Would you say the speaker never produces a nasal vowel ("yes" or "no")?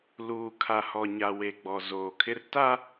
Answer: yes